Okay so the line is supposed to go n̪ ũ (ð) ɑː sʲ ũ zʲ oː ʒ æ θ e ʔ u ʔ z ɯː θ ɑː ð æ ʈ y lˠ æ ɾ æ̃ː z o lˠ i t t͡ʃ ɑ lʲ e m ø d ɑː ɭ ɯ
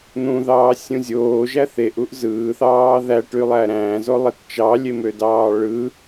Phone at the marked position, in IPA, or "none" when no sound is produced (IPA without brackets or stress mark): ð